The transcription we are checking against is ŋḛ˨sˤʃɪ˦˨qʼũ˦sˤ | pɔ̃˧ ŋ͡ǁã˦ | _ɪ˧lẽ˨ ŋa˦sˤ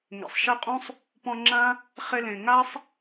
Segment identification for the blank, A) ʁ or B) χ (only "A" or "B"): B